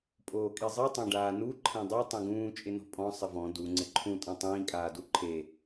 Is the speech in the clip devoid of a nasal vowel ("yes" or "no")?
no